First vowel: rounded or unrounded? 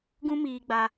rounded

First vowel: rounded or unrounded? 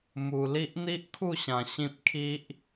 rounded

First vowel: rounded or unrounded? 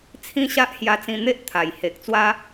unrounded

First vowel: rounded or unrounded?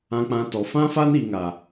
unrounded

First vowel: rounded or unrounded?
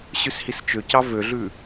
rounded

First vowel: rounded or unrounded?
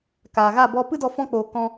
unrounded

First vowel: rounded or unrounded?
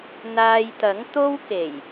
unrounded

